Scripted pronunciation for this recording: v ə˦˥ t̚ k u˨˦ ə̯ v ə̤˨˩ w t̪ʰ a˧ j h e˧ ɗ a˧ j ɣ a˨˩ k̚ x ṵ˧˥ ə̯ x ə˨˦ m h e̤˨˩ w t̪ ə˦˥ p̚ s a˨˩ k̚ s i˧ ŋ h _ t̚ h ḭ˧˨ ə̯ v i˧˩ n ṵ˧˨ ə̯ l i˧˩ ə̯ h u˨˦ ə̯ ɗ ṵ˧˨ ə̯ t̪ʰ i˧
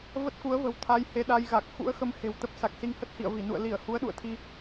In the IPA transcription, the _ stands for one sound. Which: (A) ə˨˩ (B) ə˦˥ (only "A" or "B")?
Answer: B